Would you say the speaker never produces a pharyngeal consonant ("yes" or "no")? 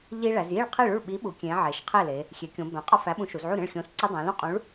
no